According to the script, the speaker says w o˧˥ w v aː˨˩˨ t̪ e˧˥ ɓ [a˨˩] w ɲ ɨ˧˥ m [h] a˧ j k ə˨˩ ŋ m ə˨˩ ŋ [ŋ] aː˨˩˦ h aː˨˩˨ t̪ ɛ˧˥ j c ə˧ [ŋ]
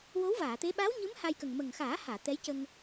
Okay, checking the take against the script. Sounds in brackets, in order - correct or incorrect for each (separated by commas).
incorrect, correct, incorrect, correct